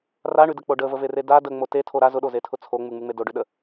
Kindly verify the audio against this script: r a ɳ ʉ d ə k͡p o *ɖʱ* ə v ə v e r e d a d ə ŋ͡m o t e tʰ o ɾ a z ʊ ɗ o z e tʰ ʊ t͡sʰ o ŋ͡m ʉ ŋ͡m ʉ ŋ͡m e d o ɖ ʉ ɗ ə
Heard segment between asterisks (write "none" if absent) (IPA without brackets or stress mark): ɖ